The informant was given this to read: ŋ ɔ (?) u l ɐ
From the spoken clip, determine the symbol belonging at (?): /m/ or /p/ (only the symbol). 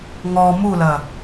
m